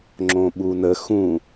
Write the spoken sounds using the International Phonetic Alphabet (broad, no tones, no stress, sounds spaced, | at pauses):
ŋ͡ǁ õ ɓ u n ə x ũ